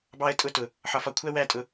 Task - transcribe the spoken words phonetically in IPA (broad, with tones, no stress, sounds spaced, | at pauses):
b ɑ˥ ə̯ tʼ ʊ˥ t ʊ˧˩ | ħ ɒ˧ f ɒ˧˩ kʷʰ æ˥ w æ˥˧ tʼ ʊ˧